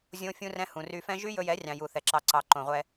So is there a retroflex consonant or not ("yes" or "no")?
no